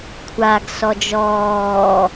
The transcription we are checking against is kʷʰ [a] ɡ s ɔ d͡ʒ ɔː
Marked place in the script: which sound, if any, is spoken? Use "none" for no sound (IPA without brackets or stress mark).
a